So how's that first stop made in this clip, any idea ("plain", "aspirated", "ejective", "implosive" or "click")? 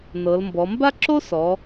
plain